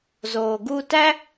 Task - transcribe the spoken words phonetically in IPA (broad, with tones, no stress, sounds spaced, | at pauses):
z oː˨ ɡ u˦ t æ˥